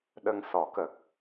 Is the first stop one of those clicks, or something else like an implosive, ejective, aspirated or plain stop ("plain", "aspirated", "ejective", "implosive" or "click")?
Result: implosive